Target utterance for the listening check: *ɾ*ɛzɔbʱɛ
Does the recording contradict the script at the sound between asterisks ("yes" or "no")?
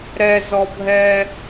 no